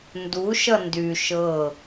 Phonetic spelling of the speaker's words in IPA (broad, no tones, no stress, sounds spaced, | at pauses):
n d u ʃ ʌ n d y ʃ ɤ